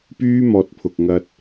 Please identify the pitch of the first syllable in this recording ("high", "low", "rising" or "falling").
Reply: high